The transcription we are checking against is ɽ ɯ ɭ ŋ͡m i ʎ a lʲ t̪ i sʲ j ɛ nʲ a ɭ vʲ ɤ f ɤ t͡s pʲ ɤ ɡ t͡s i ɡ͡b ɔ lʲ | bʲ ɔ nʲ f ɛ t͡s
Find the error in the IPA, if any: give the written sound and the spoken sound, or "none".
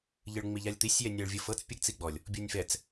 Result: ɽ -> ʎ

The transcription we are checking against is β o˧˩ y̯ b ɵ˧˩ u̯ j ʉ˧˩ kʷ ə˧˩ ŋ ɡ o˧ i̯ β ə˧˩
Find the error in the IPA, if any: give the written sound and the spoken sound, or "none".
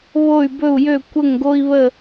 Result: ʉ˧˩ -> ø˧˩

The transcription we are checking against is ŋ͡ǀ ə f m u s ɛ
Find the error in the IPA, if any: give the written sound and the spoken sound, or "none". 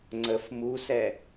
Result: none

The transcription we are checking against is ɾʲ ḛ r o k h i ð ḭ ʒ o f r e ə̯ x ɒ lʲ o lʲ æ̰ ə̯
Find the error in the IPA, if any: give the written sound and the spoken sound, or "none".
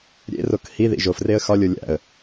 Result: none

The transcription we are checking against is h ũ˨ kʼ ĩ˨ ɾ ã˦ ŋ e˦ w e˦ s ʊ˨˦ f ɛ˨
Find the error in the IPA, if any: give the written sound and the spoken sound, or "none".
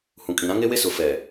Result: none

